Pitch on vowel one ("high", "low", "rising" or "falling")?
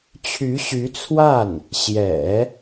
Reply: rising